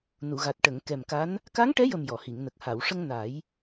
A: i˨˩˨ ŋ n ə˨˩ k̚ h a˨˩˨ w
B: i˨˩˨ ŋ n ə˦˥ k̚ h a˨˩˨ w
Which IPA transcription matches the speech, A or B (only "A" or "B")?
A